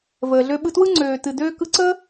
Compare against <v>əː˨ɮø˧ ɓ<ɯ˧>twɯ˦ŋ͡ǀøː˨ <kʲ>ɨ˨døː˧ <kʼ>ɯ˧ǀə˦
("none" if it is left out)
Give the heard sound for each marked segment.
v, ɯ˧, t, k

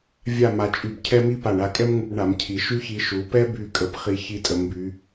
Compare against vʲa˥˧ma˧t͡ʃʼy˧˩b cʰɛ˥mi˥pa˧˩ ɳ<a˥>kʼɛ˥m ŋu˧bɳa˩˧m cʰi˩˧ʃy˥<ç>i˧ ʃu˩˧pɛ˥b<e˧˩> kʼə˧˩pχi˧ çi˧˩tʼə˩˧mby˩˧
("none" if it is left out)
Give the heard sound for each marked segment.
a˧˩, ç, y˧˩

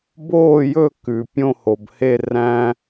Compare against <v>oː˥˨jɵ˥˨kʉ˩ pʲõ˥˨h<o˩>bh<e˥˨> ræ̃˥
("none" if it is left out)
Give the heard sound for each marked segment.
b, o˩, e˥˨

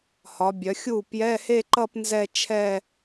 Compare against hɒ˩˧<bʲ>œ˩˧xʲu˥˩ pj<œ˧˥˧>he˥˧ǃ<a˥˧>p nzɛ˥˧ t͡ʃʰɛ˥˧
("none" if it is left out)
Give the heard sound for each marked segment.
bʲ, ɛ˧˥˧, ʌ˥˧

